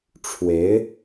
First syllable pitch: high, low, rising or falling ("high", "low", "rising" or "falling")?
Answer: rising